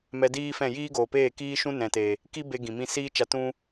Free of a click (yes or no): yes